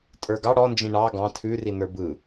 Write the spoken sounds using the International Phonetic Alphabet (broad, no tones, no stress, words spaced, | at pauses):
tʼə˞ɡɑ ɽɔ nd͡ʒĩɳɑ ɡɑ̃ tʰʉri nə˞bɯ